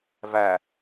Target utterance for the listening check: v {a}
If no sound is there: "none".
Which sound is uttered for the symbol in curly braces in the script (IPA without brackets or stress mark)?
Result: æ